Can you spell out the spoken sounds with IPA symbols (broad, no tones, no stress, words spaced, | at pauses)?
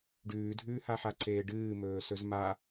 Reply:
ɖʉːdʱʉːhaħa ǀeːɖɨːmɵː sɵzma